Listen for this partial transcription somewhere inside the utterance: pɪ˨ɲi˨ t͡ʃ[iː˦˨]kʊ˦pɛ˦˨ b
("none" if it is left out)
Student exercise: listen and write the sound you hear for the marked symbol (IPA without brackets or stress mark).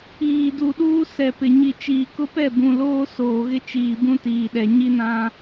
iː˨